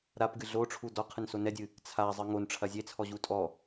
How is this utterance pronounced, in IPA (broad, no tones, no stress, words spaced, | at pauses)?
ɾapɡɨ ɮoʈ͡ʂʰu dɔqʰɨnso nɛdʲɨ | t͡sʰazˤɨ ŋonʈ͡ʂʰɐ zʲet͡sʰɔʑu tʼɔ